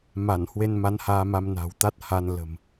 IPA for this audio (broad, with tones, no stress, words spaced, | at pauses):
ma˧˩n hwe˧nma˨˦nhaː˧ma˧m na̤˨˩wt̪a˦˥t̚ ha˧n lə̤˨˩m